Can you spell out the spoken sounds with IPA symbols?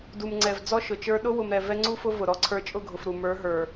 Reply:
d u˨ m ŋ͡ǀ ɛ˨ v d͡z ɔ˦ ʃ ʊ˨ t͡ʃ ə˞˦ ɗ ʊ˦ w ʊ˨ m ɾ ɛ˨ v ɛ˦ ŋ͡ǀ u˦ f ʊ˦ v ʊ˨ ɾ ɔ˦ ǀʰ ə˞˦ t͡ʃʼ ʊ˦˨ ɡʱ ʊ˨ f ɾ u˨ m ə˞˨˦ ɦ ə˞˨

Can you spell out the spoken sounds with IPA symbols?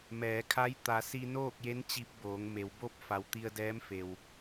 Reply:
m ɛː˩˧ kʰ a˧˥ j t̪ a˩˧ s i˧ n oː˥˨ k̚ j e˧˥ n t͡ɕ i˧ p̚ b oː˩˧ ŋ m e˩˧ w b o˥˨ p̚ f a˩˧ w t̪ i˧ ə̯ d ɛː˧˥ m f e˩ w

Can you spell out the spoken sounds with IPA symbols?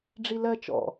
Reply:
ɖ͡ʐ i l ɜ t͡ʃ ɔ̰

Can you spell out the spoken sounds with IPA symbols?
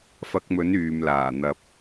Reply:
f ɐ˧ k̚ m ɵ˨˥ n yː˨ m l aː˨˩ n̪ ɐ˧ p̚

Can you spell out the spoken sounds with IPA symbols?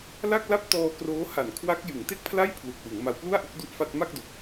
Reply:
l a˥˩ k̚ l a˥˩ p̚ t ɔː˧ k r oː˦˥ h a˨˩ n kʰ w a˦˥ k̚ j ɯ˩˦ ŋ t e˥˩ k̚ pʰ l a˥˩ j pʰ l u˨˩ k̚ w ɯ˩˦ ŋ m a˧ w p l u˥˩ a̯ ʔ u˥˩ k̚ d u˥˩ ʔ f a˥˩ t̚ m a˥˩ k̚ d o˨˩ k̚

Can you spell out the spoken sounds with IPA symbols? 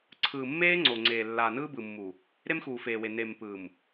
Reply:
ǀʰ ɯː˨ mː eː˦ ŋ͡ǀ o˨ ŋ͡ǀ eː˨ lː aː˨ n ɯː˦ b ɯ˨ mː u˨ | ɾ e˦ m x uː˨ f eː˨ w e˨ n e˨ m p ɯː˨ m

